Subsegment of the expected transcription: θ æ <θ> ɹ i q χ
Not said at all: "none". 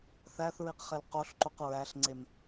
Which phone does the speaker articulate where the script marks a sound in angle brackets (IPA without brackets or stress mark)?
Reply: θ